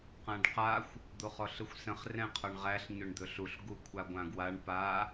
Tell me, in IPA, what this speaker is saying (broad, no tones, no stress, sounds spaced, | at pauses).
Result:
q ã ɖ q a xʷ | d̪ o χ ɔ ɬ ɯ xʷ s ə̃ χ r ɛ̃ qʰ ɒ ɳ ʁ æ ɬ ɲ ɵ ɳ d̪ ɵ ɬ u ɬ ɡ u kʷʰ a ɡʷ ã ɡ w a ɳ p a